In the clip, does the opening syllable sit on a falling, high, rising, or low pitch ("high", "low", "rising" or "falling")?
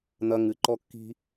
high